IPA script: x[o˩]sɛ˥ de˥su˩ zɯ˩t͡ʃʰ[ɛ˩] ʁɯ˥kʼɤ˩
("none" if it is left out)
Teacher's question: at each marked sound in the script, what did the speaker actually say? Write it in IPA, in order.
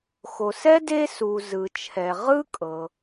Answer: o˩, ɛ˩

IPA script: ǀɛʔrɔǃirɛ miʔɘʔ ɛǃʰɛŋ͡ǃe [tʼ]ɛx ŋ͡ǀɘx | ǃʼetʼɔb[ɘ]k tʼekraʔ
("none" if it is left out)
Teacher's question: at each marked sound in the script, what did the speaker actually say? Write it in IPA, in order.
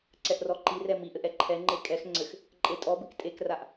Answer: kʼ, ɘ

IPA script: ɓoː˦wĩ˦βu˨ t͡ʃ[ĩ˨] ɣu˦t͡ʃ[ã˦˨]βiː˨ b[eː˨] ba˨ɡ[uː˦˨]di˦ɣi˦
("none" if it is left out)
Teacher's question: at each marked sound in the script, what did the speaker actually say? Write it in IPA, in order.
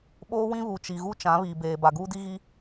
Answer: i˨, ã˨˦, eː˨, uː˦

